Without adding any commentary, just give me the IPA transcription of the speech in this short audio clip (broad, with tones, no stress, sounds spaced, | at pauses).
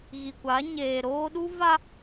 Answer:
ɣ i˨ kʷ a˨˦ ɲ eː˨ ɾ oː˦ ɗ u˦ v a˦